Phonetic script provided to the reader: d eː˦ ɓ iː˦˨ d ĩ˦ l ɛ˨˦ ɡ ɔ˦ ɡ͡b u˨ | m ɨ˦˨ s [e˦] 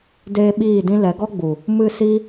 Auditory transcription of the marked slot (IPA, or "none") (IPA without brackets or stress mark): i˦